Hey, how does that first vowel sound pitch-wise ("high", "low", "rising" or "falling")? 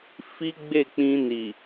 high